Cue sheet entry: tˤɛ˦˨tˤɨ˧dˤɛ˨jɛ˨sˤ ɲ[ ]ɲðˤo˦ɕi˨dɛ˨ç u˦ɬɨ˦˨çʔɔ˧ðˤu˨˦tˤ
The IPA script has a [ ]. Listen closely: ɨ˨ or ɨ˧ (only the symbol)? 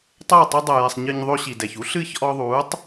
ɨ˧